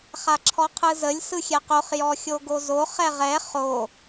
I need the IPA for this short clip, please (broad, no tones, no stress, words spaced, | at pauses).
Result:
χaǁʰɔqʰɯzəlʲ sɯxʲɛqoχ jɔxʲoɡozo χɛʁɛ χo